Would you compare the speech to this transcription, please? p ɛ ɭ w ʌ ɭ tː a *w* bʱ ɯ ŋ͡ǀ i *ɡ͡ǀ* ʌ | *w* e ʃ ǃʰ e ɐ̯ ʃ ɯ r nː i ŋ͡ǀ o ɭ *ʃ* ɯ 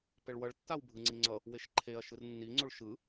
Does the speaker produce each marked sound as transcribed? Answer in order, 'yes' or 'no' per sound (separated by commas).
yes, no, yes, yes